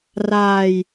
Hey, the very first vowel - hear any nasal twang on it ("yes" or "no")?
no